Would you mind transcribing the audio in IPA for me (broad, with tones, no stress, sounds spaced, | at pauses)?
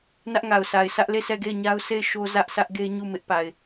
n ä˦ ʔ ŋ a˨ ʊ̯ s a˨ ɪ̯ sʰ ä˦ ʔ l e˦˨ sʰ ɛ˦˨ ɡ e˦˨ ɪ̯ ɲ a˦ ʊ̯ s e˦˨ ɪ̯ ʃ o˦ z ä˦ ʔ s ä˦ ʔ ɡ e˦ ɲ u˦˨ m ɪ˦ ʔ p a˨ ɪ̯